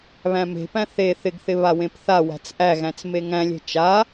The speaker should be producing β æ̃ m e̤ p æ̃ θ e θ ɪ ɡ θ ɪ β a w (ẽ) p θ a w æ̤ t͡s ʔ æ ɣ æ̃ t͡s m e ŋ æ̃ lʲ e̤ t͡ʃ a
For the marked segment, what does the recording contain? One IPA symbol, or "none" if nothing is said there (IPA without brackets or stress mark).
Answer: ẽ